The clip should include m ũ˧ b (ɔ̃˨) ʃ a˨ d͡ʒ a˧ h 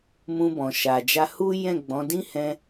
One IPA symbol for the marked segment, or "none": ɔ̃˨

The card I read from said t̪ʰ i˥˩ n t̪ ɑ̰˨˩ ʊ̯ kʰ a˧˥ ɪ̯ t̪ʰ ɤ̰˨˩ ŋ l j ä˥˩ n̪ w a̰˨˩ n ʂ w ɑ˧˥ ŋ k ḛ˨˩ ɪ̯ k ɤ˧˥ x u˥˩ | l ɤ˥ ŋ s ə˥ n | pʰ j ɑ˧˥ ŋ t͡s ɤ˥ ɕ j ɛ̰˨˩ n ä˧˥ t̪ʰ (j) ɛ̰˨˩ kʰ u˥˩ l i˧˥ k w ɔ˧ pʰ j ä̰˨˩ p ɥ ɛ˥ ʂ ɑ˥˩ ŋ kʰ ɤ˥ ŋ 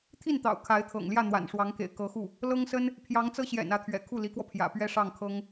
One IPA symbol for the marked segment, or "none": ɥ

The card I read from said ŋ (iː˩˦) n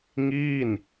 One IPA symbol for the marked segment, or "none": iː˥˩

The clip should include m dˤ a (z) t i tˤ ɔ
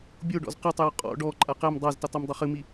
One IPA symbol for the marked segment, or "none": z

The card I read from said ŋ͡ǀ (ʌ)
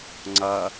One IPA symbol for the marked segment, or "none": ʌ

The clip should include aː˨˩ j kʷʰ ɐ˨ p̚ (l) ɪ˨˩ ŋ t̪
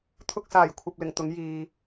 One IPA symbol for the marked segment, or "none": l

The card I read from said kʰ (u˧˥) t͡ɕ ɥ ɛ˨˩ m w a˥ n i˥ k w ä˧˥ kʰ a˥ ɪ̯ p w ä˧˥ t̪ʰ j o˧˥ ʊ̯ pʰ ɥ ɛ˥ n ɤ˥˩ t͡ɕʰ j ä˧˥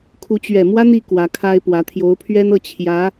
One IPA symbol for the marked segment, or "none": u˧˥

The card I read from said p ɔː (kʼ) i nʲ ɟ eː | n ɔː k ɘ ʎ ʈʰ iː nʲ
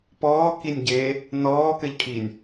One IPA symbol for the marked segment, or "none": k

